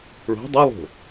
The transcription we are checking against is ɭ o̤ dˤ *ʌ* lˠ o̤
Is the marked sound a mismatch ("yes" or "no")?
no